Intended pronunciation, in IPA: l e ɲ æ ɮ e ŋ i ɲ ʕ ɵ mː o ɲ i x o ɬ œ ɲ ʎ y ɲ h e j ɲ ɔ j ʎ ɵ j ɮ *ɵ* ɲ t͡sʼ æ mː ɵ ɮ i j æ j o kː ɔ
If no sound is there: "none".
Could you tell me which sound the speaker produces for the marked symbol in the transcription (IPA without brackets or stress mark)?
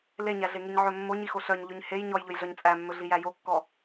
œ